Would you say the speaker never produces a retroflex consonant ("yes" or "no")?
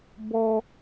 yes